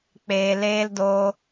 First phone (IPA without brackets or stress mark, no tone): k͡p